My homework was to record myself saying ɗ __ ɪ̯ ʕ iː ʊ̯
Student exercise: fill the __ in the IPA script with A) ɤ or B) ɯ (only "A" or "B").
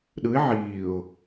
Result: B